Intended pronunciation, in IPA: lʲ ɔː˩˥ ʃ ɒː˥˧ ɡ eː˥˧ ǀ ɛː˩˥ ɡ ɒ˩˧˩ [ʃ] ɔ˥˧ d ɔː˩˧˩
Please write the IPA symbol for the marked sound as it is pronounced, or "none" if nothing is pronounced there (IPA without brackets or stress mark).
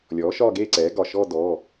ʃ